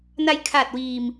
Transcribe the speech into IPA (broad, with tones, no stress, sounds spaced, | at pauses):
n a˧ j kʰ a˨˩ t̚ w iː˧ m